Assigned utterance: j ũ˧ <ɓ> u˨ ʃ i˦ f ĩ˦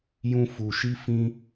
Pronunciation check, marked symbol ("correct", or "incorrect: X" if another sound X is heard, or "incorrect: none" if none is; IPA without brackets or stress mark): incorrect: f